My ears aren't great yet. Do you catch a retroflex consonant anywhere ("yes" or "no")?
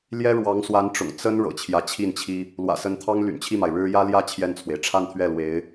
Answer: yes